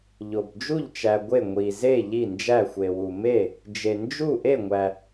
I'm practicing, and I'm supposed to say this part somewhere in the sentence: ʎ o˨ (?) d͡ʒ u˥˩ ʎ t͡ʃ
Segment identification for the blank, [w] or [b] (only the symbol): b